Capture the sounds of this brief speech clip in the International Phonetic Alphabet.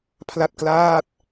pʰla˥˩t̚klaː˥˩t̚

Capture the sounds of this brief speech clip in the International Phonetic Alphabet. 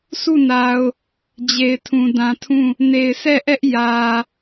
su˦˨na˨ʊ̯ | d͡ʑe˨ɪ̯tʰũ˨dã˨tʰũ˦˨ | ne˨ɪ̯sɛ˦˨ʔɛ˦ʔ jä˨

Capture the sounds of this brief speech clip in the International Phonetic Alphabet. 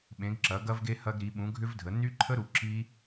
ɓẽ˩˥ɡǁɐ˩˥ ɡɐ˦˥vɡe˦˥ hɐ˦˥ɡɾi˩˥ ɓũ˩˥ɡʱʏ˦˥vdʱə˩˥ ny˦˥ǃʰə˦˥ ɾu˩˥ǁi˦˥

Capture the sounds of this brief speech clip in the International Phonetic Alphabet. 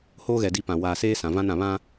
hoː˦ɣɛ˨ di˦pã˨ waː˨seː˦ sã˨vã˦n ã˨βã˦

